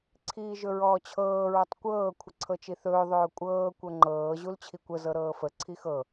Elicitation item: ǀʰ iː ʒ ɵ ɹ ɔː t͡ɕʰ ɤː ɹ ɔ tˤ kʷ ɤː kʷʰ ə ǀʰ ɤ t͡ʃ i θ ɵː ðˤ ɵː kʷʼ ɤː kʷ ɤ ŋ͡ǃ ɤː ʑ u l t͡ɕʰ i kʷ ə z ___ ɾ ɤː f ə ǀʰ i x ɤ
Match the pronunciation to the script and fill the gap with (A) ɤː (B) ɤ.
B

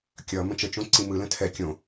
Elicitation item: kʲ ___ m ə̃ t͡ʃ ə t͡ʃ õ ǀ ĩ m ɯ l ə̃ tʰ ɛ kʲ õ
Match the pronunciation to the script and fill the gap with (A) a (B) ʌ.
B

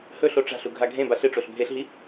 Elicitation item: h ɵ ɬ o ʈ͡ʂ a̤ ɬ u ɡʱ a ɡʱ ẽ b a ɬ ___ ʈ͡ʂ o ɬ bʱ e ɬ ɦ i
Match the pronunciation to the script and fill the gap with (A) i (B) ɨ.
B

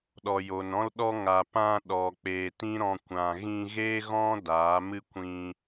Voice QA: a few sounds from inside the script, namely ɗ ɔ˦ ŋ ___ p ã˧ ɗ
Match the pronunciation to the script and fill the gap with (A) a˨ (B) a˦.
A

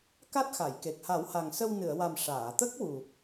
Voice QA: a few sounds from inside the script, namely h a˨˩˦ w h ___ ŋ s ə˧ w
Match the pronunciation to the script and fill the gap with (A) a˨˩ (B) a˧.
A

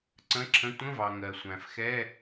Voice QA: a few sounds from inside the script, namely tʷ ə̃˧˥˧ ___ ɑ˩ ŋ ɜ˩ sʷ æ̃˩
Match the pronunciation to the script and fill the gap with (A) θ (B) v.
B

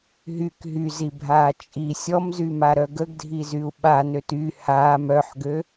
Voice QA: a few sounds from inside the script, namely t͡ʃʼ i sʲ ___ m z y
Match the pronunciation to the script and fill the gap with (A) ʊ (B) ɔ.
B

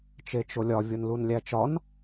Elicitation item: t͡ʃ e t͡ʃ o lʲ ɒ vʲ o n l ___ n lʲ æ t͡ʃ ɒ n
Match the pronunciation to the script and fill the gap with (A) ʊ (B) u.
B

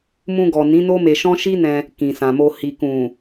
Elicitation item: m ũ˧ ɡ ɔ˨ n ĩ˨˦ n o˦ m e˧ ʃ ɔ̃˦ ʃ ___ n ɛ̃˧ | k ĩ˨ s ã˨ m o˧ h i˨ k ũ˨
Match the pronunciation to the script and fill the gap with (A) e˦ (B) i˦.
B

